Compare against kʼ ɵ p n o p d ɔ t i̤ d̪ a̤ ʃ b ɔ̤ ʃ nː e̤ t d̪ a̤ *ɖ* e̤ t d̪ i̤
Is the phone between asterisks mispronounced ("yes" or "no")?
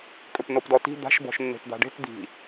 no